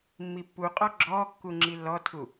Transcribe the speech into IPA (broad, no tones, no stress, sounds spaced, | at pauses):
mː i pː u qʼ ɔ ɡ͡ǁ ɔː kː u ŋ͡ǁ i lː ɔ tʰ u